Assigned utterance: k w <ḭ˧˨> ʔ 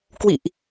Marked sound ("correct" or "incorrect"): correct